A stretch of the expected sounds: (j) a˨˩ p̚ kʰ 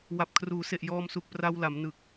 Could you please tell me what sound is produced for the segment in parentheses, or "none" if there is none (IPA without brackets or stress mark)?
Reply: w